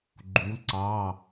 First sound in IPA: ɡ͡ǃ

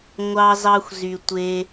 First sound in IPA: ŋʷ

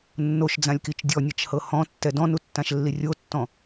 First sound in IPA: nː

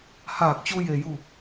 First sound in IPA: h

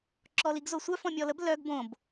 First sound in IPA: ǁ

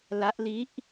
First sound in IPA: l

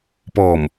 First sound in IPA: p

